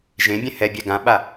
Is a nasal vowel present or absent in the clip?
present